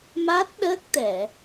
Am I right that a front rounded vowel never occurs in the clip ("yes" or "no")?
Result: yes